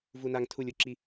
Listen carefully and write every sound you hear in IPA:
vu˧na˧ŋtʰu˧lʲ u˨ǁi˦

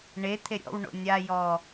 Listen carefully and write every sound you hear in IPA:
ɳe t̪ʰeɾʲɔ̰w ɳo̰nʲa jɔ

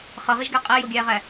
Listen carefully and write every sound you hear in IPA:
χʌʁiʒɡæ qʼæjoɡʲæːʁæ

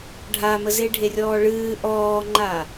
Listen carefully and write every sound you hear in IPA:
ɖʱaməze ɖʱerʲɔːɭɨː ʔɔːŋ͡ǃa

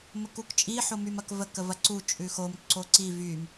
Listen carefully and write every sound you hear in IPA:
məkukt͡ʃʼi ħomymɐkvə kəvɐǀu t͡ʃʼʉxom ǀoǀi vym

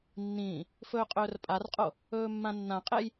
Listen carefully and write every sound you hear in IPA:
nːĩː | fɵːqʼɵːrpʼarqʼo | ɵːmːãnːãqʼej

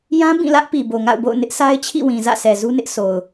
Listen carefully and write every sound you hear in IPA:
jã˦ bĩ˦˨lä˦ʔ pi˨bo˨ŋa̰˦˨ʊ̯bo̰˦˨ʊ̯ nɪ˦ʔsa˦ɪ̯t͡ɕʰḭ˦˨wĩ˨ zä̰˦˨sɛ˨zu˦nɪ˦ʔ sʰo˨ʊ̯

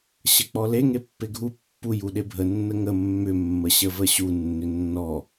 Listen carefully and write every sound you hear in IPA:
ɕək͡pɔle ŋepːeɡʱu pːu juɗebʱə nːəŋə mːʏ mːəɕəvəɕu nːʏnːɔ

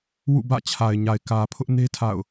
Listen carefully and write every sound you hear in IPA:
wṵ˦˨bä̰˦˨t͡ɕʰa˨ɪ̯ɲa˨ɪ̯ kä˨ pʰʊ˦ʔne˦ tʰa̰˦˨ʊ̯

